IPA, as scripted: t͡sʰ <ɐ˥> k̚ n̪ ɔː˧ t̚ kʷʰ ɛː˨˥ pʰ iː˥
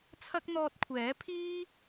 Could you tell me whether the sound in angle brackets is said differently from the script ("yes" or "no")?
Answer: no